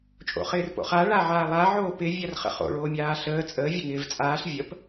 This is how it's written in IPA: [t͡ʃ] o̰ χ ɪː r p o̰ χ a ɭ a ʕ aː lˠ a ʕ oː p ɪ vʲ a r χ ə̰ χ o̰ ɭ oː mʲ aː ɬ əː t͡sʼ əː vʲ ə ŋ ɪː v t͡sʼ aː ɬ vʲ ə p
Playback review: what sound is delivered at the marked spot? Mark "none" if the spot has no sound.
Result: t͡ʃʼ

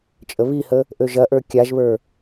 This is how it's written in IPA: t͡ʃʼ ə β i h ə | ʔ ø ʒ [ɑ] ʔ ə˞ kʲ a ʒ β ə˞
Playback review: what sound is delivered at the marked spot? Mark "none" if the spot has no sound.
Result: ɐ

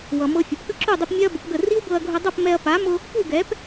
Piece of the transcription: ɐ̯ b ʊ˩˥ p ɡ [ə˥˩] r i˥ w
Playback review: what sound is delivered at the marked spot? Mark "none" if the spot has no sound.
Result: ə˥˩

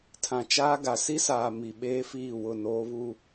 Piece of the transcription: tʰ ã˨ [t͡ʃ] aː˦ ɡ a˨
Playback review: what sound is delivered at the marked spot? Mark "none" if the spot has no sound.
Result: t͡ʃ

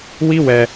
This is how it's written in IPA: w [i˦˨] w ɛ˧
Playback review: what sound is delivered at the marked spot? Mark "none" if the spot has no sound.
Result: i˦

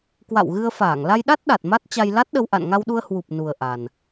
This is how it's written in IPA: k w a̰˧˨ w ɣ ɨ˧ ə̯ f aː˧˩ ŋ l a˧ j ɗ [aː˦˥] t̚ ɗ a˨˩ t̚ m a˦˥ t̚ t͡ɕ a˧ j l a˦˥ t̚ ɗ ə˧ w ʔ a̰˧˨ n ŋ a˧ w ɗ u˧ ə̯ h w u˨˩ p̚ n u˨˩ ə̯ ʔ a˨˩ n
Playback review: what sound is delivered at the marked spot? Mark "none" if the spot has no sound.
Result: a˦˥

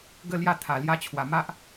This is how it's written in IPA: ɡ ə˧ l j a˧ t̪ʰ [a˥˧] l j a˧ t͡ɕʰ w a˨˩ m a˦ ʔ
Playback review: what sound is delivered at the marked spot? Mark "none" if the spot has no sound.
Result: a˨˩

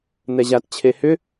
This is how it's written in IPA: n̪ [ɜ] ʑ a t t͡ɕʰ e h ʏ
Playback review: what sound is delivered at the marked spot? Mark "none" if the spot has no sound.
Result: ɛ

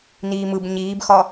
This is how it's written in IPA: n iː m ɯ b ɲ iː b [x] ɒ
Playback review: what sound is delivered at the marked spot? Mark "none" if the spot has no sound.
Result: x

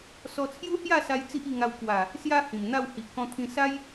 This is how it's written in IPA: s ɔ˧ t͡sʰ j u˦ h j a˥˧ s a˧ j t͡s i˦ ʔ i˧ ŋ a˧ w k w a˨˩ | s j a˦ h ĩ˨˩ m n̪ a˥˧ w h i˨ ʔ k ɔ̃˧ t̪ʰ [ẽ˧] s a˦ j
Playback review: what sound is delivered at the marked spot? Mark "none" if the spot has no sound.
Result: ĩ˧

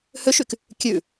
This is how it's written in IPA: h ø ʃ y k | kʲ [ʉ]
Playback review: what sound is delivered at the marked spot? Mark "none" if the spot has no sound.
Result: ʉ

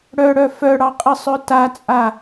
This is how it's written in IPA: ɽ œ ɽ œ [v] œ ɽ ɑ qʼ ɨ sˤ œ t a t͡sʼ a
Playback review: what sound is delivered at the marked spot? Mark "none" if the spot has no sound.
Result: f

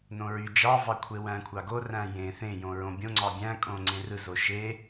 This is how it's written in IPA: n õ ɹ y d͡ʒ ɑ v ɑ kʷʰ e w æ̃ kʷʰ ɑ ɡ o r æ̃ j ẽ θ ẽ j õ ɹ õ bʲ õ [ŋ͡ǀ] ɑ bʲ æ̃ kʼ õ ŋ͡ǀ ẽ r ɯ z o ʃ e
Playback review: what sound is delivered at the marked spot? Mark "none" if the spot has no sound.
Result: ŋ͡ǀ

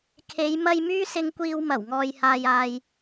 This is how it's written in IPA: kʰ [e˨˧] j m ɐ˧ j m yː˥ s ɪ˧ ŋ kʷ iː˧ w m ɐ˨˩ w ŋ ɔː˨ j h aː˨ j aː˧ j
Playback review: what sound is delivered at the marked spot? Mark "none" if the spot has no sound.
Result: e˨˧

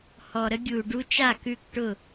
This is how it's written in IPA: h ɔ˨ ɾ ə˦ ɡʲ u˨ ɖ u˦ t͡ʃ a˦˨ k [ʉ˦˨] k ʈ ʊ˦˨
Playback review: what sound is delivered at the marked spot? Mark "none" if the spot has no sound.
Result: ʉ˦˨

